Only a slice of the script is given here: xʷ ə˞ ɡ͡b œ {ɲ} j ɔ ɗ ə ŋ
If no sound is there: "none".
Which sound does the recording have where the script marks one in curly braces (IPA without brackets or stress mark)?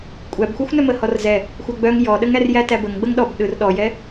ŋ